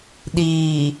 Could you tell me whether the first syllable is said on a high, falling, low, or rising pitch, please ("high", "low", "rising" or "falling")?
low